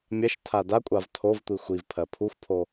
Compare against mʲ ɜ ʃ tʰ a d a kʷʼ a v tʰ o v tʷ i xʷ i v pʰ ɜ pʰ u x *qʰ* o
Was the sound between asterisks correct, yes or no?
no